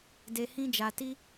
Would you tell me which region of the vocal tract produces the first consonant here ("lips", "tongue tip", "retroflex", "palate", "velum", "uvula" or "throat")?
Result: tongue tip